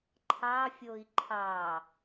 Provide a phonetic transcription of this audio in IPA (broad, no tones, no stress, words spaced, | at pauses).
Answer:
ǃʰɑfʲoi̯ ǃʰɑ